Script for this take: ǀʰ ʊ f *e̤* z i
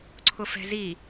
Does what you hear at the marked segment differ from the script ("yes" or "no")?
yes